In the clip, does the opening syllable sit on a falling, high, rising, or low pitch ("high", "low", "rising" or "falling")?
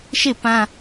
falling